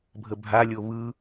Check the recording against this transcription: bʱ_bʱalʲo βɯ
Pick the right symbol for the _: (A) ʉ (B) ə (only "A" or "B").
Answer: B